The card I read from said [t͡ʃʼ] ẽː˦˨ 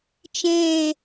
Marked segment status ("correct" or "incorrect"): incorrect